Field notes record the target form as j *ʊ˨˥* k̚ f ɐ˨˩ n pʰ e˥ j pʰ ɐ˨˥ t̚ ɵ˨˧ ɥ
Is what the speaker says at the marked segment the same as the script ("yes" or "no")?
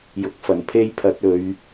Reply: yes